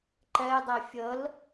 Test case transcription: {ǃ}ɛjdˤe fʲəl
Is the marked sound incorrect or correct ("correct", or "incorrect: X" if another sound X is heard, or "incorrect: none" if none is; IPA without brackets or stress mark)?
correct